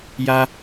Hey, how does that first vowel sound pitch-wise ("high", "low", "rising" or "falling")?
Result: high